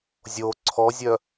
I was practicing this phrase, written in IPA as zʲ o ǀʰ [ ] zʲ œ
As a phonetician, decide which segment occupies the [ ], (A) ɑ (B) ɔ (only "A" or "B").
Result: B